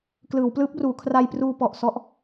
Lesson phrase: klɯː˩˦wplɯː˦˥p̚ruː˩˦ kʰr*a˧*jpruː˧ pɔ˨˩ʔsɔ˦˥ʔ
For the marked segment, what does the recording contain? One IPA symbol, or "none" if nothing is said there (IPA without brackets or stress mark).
a˧